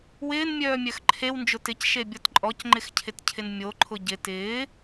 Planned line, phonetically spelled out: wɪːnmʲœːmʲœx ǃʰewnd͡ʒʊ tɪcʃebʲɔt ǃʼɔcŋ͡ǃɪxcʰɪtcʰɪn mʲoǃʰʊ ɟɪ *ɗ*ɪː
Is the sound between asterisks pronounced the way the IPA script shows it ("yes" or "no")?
no